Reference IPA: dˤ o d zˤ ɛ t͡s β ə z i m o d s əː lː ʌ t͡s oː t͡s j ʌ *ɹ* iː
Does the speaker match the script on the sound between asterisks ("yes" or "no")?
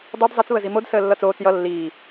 no